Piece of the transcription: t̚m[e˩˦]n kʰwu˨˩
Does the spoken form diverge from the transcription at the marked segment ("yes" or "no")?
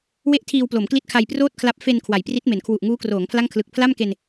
no